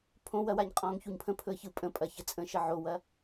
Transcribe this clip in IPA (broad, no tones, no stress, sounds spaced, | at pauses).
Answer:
pʰ õ w ɐ w a ɲ qʼ ɔ̃ː ŋ ç u ɲ pʰ ə̃ pʰ ɵ ə̯ ç ɯ pʼ ə̃ pʼ ɐ ç ə t͡sʼ ə̃ ʃ ə ʕ o w ɐ